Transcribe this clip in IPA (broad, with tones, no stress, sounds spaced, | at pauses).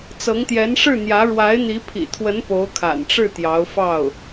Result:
t͡s ɤ˧˥ ŋ t̪ j ɛ˧˥ n ʂ ɻ̩˥˩ n̪ j ä˧˥ ɻ w a˧˥ ɪ̯ n̪ i˧˥ pʰ ḭ˨˩ t̪ʰ w ə˧˥ n p o˧˥ ʊ̯ kʰ a̰˨˩ n ʈ͡ʂ ɻ̩˥˩ t̪ j ɑ˧˥ ʊ̯ f ɑ˥˩ ʊ̯